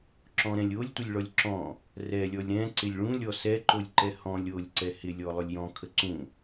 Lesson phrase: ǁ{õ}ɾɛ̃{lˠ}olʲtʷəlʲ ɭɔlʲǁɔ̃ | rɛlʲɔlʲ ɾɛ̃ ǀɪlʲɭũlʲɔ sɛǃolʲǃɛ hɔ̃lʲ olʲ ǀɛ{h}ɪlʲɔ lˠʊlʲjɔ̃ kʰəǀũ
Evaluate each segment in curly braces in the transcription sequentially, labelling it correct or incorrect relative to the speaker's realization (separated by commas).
incorrect, incorrect, correct